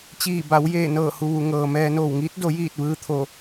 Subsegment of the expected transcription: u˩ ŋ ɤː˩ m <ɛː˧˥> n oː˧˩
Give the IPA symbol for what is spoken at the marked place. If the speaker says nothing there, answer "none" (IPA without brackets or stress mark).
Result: ɛː˧